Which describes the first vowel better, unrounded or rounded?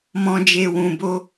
rounded